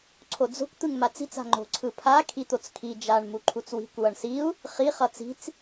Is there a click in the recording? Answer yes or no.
yes